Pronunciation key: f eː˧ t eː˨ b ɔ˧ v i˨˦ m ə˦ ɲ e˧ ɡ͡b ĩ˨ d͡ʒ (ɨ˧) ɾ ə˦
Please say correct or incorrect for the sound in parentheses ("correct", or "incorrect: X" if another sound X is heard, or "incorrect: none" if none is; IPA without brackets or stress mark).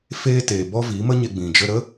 incorrect: ə˧